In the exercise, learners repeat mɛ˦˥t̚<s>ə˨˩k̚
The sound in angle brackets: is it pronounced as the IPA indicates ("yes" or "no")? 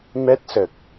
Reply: yes